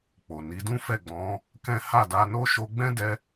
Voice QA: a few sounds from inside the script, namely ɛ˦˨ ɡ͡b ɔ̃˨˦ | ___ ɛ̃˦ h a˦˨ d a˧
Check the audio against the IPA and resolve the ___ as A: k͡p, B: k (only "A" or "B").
B